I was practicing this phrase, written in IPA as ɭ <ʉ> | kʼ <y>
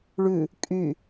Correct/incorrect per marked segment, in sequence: correct, correct

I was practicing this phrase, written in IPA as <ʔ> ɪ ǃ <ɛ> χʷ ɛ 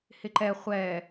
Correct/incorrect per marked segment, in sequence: incorrect, correct

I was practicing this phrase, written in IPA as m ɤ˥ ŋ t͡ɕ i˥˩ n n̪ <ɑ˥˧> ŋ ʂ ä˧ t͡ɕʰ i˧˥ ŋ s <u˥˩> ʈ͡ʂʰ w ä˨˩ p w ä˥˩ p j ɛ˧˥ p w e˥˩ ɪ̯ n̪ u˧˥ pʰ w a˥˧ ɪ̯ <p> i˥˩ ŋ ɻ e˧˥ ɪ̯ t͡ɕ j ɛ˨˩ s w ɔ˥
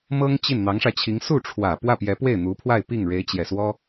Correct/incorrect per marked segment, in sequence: incorrect, correct, correct

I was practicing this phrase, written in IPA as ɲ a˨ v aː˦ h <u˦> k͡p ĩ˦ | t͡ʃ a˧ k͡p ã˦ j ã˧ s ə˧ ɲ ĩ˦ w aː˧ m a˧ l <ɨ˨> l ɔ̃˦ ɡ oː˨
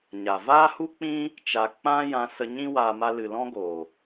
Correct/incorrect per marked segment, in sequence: correct, correct

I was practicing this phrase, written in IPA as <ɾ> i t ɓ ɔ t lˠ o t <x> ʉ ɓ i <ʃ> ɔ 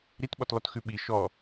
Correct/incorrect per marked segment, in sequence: correct, correct, correct

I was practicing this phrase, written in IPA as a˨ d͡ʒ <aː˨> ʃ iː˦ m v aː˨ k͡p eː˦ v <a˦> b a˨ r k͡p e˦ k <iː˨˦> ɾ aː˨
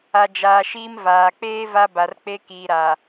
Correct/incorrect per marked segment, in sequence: correct, correct, incorrect

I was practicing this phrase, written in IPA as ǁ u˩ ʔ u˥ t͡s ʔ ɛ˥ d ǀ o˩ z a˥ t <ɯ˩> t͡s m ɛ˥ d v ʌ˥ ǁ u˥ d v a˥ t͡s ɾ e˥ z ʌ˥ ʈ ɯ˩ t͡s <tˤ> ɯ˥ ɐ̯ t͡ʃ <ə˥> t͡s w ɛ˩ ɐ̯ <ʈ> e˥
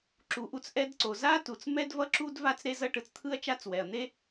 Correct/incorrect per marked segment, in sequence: incorrect, incorrect, incorrect, incorrect

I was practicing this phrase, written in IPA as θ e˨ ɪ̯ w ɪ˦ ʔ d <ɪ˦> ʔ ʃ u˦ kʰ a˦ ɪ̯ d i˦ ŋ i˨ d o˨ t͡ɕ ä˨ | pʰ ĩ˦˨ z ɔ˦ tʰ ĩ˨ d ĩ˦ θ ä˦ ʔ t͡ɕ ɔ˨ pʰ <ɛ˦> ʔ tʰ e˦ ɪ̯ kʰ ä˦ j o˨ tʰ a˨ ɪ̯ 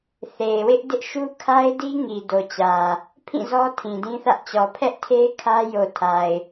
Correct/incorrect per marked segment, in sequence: correct, correct

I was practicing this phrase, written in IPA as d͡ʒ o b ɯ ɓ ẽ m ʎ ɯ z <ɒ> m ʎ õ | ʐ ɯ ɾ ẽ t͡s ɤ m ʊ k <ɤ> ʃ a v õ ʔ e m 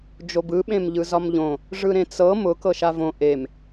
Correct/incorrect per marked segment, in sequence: correct, correct

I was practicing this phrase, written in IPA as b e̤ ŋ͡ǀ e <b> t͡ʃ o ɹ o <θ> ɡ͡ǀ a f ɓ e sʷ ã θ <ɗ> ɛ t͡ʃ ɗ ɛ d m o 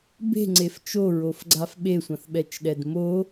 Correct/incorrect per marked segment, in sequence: incorrect, incorrect, incorrect

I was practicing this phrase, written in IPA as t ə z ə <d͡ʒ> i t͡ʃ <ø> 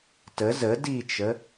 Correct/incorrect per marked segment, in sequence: incorrect, incorrect

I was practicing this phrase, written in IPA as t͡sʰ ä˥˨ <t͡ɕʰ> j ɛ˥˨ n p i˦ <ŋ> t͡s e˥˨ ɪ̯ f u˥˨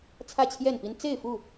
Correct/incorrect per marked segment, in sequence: correct, incorrect

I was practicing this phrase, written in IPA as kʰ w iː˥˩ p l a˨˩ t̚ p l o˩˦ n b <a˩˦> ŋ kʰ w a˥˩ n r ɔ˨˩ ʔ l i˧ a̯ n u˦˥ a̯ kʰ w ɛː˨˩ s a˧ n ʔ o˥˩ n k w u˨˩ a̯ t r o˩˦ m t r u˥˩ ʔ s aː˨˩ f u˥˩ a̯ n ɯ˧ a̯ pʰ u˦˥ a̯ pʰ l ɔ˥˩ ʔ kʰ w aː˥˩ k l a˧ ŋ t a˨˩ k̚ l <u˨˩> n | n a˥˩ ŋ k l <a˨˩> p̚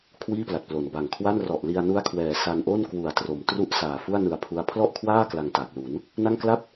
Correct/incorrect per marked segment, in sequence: incorrect, incorrect, incorrect

